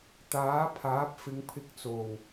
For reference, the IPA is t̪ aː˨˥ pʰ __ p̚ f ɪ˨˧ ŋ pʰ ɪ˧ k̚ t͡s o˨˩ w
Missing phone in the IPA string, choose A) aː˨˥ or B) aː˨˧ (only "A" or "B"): A